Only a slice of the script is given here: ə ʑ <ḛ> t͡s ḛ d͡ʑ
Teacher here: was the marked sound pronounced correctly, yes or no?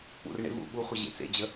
yes